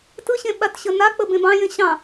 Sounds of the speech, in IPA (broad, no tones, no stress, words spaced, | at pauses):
tɯɕẽ ɓatɕənak͡pə bẽbɑ̃jẽ ɕɑ̃